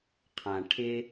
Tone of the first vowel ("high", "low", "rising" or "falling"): low